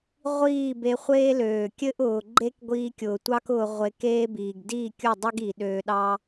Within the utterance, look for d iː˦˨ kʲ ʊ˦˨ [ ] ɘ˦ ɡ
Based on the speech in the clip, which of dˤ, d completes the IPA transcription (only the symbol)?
dˤ